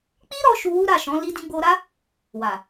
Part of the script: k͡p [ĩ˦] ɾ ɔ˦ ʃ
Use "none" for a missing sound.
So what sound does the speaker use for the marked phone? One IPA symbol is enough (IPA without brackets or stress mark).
i˦